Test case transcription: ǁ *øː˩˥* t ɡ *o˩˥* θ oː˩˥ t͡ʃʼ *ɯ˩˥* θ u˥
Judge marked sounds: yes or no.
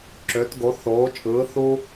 no, yes, no

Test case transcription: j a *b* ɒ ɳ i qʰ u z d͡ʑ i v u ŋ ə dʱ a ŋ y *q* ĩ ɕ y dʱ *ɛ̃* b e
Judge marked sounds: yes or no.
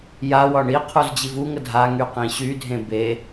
no, yes, no

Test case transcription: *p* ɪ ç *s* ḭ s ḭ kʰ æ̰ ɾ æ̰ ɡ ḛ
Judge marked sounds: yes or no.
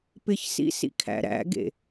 yes, yes

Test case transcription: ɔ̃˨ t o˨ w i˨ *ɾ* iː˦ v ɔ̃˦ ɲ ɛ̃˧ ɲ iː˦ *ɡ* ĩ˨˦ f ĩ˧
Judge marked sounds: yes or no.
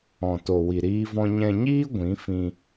yes, no

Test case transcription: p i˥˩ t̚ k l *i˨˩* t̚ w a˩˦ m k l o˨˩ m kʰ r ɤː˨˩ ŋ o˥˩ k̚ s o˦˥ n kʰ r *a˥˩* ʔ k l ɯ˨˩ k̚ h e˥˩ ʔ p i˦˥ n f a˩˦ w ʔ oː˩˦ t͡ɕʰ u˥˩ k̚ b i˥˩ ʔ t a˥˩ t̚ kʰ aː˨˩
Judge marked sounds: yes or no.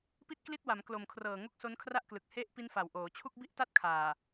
no, yes

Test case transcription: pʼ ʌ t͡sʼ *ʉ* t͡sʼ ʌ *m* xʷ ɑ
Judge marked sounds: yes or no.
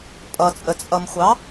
no, yes

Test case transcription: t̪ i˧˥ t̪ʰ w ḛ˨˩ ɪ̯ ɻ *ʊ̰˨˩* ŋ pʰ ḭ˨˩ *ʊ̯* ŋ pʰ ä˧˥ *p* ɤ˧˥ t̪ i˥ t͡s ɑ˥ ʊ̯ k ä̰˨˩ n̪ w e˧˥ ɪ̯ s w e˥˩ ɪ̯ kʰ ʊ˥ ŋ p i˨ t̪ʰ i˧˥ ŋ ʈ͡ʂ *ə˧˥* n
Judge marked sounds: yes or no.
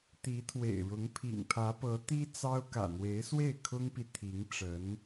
no, no, yes, yes

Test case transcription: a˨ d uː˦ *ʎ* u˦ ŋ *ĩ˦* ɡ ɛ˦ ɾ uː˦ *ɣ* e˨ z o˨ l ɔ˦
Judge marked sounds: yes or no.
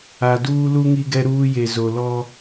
no, no, no

